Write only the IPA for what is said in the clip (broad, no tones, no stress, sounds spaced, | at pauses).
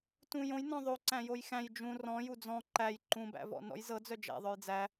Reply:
t ũ j õ j n ɔ̃ ðˤ o ǀ æ̃ j o j x æ̃ j d͡ʒ ũ r ɔ̃ j u d͡z ɔ̃ ǃ æ j ǃ ũ b æ̰ v ɔ̰ n ɔ̰ j z ɤ d͡z œ d͡ʒ æ̰ ðˤ œ j d͡z æ